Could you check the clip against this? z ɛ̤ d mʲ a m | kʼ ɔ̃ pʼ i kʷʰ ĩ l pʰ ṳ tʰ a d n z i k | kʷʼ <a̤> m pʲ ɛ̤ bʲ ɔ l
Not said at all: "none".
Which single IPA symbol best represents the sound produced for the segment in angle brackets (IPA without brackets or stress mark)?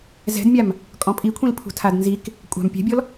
a̤